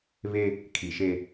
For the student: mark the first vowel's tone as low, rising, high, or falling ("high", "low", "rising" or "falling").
high